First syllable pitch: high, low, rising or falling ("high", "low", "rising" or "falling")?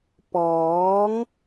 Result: rising